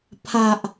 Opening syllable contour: high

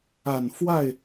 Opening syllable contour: low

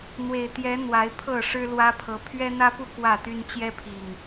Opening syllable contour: low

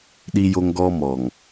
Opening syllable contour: high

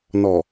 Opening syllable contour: low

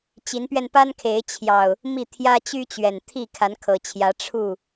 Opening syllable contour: rising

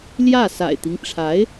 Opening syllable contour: falling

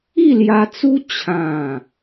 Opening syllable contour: falling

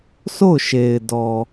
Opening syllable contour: falling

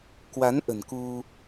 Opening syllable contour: rising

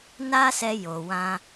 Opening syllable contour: high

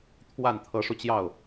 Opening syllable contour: falling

